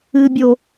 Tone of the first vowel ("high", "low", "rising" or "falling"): low